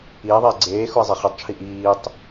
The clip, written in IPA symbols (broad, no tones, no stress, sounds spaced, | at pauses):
iː ðˤ iː ɡ͡ǀ eː x u i̯ zˤ e χ u tˤ t͡ʃʰ i ʔ iː tˤ